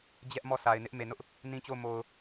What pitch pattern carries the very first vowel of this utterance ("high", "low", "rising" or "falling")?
high